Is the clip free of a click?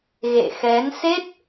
yes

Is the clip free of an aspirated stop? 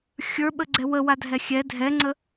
yes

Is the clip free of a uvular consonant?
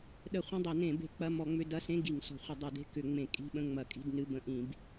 no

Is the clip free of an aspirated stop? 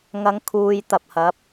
no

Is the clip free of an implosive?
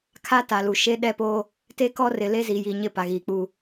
no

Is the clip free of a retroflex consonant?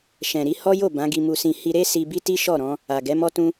yes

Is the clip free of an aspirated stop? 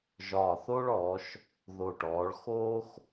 yes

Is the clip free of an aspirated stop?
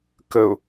yes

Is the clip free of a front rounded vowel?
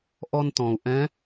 yes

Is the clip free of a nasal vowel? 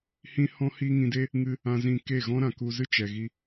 no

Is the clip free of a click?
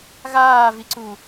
no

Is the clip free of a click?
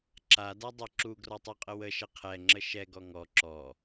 no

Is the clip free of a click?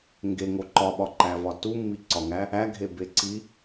no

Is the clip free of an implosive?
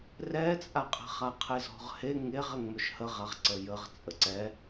yes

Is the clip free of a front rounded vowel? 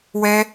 yes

